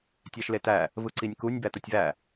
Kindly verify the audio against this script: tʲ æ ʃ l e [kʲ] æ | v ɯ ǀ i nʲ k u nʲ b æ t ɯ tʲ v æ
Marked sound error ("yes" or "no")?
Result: yes